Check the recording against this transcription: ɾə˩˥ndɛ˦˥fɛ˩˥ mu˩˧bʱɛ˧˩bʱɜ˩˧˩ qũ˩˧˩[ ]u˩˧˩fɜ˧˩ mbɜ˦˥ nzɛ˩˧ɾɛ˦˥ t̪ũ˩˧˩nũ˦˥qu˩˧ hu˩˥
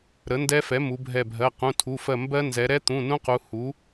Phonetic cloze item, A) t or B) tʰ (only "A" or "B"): B